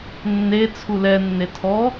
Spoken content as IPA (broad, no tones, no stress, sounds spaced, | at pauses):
nː e t͡sʰ u l ɛ nː e tʰ ɔ